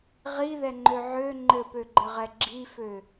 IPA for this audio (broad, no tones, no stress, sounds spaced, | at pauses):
ʁ i ð ɛ ŋ͡ǃ ø ʕ ø ŋ͡ǃ ɘ p ø ɡ͡ǃ ɘ ʁ ɛ ɡ͡ǁ i f ø